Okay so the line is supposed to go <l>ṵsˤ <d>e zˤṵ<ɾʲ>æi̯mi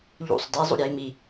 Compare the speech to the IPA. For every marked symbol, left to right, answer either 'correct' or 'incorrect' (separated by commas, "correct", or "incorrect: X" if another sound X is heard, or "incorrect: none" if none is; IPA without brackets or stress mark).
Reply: incorrect: ʎ, correct, correct